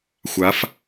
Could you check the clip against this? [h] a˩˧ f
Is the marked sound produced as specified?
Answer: no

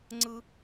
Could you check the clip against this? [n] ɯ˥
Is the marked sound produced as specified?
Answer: no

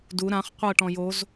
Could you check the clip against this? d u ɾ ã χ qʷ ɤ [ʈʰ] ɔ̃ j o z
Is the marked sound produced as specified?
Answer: no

